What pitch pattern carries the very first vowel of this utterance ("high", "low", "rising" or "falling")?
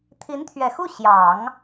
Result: rising